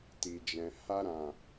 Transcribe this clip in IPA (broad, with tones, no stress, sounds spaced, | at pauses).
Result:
t i˨ d͡ʒ ɛ̃˨ h a˧ ɾ ã˨